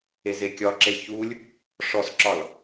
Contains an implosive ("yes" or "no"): no